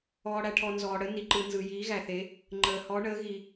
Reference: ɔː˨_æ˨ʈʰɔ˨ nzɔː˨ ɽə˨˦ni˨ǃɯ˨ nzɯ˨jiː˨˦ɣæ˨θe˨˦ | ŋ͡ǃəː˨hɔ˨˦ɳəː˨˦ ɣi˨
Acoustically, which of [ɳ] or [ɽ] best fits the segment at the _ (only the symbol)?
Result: ɽ